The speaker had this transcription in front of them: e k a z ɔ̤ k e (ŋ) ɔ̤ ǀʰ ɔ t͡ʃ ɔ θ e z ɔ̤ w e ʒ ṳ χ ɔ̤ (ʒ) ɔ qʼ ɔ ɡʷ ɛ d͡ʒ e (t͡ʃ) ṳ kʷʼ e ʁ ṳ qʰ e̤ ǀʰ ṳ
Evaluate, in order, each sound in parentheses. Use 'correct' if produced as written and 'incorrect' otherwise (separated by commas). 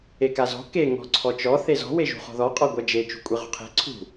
correct, incorrect, correct